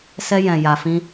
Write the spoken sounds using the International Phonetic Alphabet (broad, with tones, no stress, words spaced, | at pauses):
sɛ˦jɛ̃˧ja˧fĩ˦